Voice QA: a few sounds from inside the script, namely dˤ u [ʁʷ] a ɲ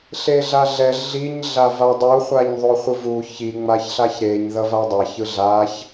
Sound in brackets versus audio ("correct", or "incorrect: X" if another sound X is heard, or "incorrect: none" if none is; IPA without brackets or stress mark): incorrect: χʷ